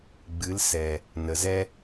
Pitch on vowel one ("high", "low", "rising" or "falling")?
rising